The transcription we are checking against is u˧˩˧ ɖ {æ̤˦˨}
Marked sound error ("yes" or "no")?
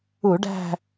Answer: no